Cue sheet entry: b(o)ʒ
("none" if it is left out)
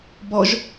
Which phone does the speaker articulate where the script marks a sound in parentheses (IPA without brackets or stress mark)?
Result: ɔ